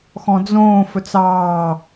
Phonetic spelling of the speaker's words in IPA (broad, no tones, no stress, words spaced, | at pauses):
xɔ̃d͡zõː fɵt͡sɑː